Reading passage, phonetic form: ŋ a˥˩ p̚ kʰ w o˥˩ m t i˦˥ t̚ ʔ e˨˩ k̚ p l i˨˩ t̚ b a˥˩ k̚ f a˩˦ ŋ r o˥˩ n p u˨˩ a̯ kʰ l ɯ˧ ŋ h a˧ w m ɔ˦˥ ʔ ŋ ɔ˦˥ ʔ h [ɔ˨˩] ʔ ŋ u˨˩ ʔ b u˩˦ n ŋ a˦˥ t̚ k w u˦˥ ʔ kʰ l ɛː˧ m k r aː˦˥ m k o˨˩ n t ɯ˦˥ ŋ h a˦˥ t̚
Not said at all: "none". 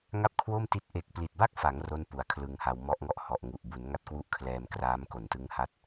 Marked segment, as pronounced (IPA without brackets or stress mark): ɔ˨˩